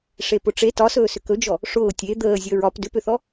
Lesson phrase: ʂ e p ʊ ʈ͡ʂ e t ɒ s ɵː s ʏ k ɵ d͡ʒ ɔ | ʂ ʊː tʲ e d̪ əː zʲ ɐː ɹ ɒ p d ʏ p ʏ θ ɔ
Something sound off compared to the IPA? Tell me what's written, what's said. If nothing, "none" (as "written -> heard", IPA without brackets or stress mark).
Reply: ɐː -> əː